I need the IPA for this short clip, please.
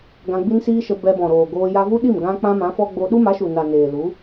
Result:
ɡ ã˧ ɡ͡b i˦ n s iː˦ ʃ ə˧ b ɛ˧ b ɔ̃˨ ɾ oː˨ ɡ oː˧ j a˧ v u˦ ɗ i˦˨ m ɡ ã˦ k͡p ã˦ m ã˨˦ f ɔ˦ ɡ͡b o˧ ɗ u˦ m a˨˦ ʃ u˨ n a˨ n eː˨ l u˨˦

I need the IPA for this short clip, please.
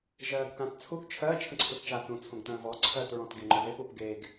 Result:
ʒ ɜː ɡ θ ã t t͡sʰ u ɡ t͡ʃʰ ɜ t͡ʃʰ ə̃ ǀʰ u t t͡ʃ a θ ũ t͡sʰ õ ɡ t ə̃ː v ɔ ǀʰ ɜ t ɹ ɔ̃ t ɡ e ŋ͡ǃ o ð e p u p ɡ e ɡ

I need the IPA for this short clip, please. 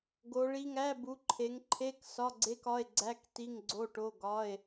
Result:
ɡ o˨˦ ɭ i˧˥˧ ŋ æ˧˥˧ b u˨˦ ǃʰ e˨˦ ŋ ǃʰ e˧˥˧ k s ɒ˧˥˧ ɡ͡ǀ e˧˥˧ k ɒ˧˥˧ e̯ ɡ͡ǀ æ˧˥˧ k t i˧˥˧ ŋ ɡ͡ǀ o˧˥˧ ʈ o˧˥˧ ɡ ɒ˧˥˧ e̯

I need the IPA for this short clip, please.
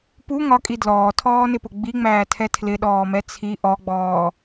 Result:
p u ŋ ɒ kʼ i d l ɔː tʰ ɔː n ɪ p ʊ ɡ͡b i ŋ͡m æː tʰ ɛ tʰ l ɪ ɗ ɔː m ɛ t͡sʰ i ʔ ɔ ɡ͡b ɔː

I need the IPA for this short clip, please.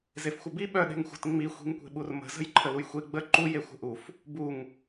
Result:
z e f xʷ ə b i ɓ œ ɗ e̤ ŋ xʷ ə̤ t ŋ͡m i xʷ i̤ ŋ kʷ e̤ ɓ u r m ə̤ z ə̤ j ǃʰ ə l u j xʷ e ɡ͡b ə ǃ u j e xʷ ə̤ ʔ u f | b u ŋ

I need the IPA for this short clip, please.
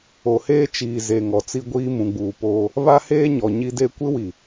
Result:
o˨ h eː˦ t͡ʃ iː˨ z e˨ ŋ ɔ˨ t͡s i˦ ɡʷ iː˦ m ũ˨ ɡ͡b uː˨ p oː˦ | β a˦ h eː˦ ɲ ɔ˨ ɲ i˦ d e˦ kʷ ɪ˦ w i˨

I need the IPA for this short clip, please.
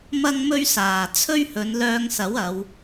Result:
m ɐ˥ ŋ m ɵ˥ ɥ s aː˨ t͡sʰ ɵ˥ ɥ h ɵ˨˧ n l œː˧ ŋ s ɐ˨˥ w ɐ˨˧ w

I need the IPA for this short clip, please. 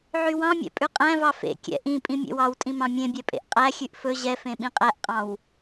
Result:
ʕ y w ɑ̃ mʲ ɛ̰ pʼ ʉ qʼ æ̃ v ɑ f ḛ kʲ ɛ̰ ʔ ĩ pʼ ĩ mʲ ḛ w ɑ w tʼ ĩ m ɑ̃ mʲ ẽ bʲ ɛ pʼ ḛ ʔ qʼ æ xʲ ʉ ʔ f ɵ ʑ ɛ f ẽ ɓ ĩ qʼ æ ʔ qʼ ɑ̃ w

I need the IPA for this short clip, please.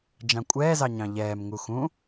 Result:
d͡ʒ ɑ̃ kʷʼ ɛː z ɑ ɲ ɑ̃ ʎ ɛː m ŋ u x ũ

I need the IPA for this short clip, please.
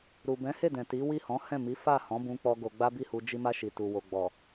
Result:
ɾ u˨ b ɛ̃˨˦ h e˦˨ d ɛ̃˨ t i˨˦ w i˦˨ h ɔ̃˨˦ h ɛ̃˦˨ m i˨˦ f a˦˨ h ɔ̃˨˦ b ũ˦ k͡p ɔ˦ ɡ o˧ ɡ͡b a˦ b i˦˨ h u˧ d͡ʒ i˧ m a˧ ʃ i˨ t u˨ w o˨ ɡ͡b ɔ˨

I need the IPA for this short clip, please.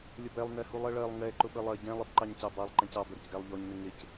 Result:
lʲ ə b ɛ lˠ n ɛ h u lˠ ɜ ɭ ɜ lˠ ŋ ɛ ǃ ʊ ɓ ə lˠ ɜ ɟ ɛ̃ lˠ ɪ b ǃ ɑ ɲ c ɑ b ɑ lˠ ǃ ɛ̃ c ɑ b ə ɾ ɪ c ɡ æ lˠ ʎ ɔ ɲ n ɪ ŋ ɪ c

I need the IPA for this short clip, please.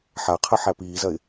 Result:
ħ a qʰ ə ħ æ p iː z ɐ ɪ̯

